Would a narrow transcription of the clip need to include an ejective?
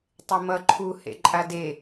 yes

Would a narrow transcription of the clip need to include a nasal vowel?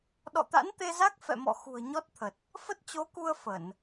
no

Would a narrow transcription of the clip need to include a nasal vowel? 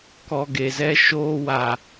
no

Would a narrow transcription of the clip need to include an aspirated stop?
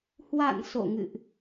no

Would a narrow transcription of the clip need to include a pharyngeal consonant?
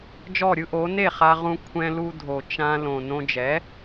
no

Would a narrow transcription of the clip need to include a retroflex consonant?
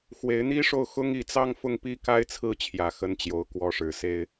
yes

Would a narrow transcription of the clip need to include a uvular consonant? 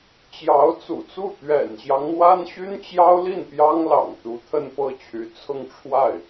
no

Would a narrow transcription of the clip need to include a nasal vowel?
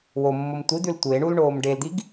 no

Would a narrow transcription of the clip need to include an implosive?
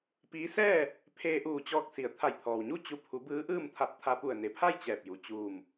no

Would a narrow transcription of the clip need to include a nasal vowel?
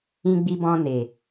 yes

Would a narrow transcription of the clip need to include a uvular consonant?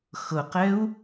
yes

